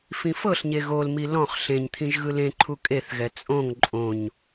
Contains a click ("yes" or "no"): yes